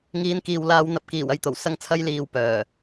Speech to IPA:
ŋ iː˨˧ n k iː˨ w l aː˧ w n̪ ɐ˨ p̚ k iː˨˩ w ɐ˨ j t̪ o˨˩ w s ɐ˧ ŋ t͡sʰ ɐ˧ j l iː˨ w p œː˨˩

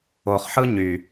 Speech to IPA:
o χ ħ ɯ ɲ y

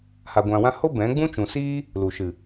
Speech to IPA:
h a˧ ɡʷ ã˧ w ã˦ h o˦ b ɛ̃˨˦ ɡ͡b ũ˦ t͡ʃ ũ˨ s iː˦ | l u˨ ʃ ɨ˨

